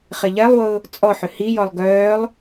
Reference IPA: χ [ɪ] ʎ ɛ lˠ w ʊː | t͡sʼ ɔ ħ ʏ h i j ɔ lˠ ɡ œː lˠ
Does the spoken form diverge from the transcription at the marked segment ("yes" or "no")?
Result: no